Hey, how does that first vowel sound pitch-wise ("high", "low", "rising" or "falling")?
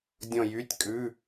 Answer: falling